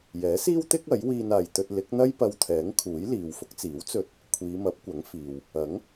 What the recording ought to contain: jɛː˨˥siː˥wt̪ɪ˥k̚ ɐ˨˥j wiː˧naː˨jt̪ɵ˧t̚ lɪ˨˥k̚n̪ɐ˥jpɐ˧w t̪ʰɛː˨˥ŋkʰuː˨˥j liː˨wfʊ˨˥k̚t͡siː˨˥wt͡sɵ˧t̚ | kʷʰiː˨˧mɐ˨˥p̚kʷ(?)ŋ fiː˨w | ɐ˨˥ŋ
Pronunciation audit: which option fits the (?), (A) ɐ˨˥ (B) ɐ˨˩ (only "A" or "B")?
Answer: A